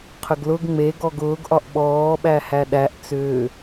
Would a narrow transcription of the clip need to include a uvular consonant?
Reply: yes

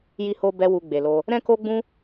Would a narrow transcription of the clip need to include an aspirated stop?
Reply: no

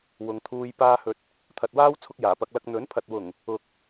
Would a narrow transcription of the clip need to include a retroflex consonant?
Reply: no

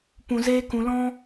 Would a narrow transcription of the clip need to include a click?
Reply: no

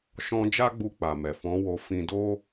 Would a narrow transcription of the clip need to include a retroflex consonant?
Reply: no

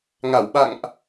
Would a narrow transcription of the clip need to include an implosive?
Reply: yes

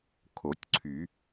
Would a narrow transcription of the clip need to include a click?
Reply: yes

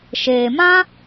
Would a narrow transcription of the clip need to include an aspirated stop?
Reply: no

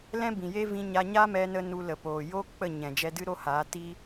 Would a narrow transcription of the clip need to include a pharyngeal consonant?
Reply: no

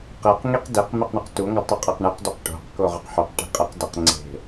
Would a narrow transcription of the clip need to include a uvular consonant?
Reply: yes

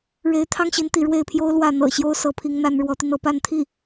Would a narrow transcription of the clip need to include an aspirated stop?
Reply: yes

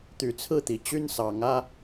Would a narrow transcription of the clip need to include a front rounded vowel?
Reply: yes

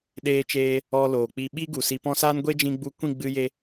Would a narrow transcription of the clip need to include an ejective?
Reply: no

